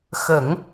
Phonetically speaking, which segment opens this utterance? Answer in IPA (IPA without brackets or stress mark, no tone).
x